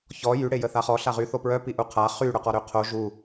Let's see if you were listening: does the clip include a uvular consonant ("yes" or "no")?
yes